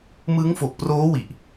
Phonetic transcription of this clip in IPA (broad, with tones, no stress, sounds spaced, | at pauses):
m ɯ˦˥ ŋ f o˨˩ k̚ p r oː˦˥ w i˨˩ ʔ